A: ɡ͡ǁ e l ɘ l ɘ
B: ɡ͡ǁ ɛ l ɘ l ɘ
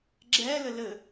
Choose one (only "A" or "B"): B